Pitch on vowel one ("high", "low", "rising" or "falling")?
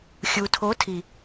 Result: low